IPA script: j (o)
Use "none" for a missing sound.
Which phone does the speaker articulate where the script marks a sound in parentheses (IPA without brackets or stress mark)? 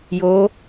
o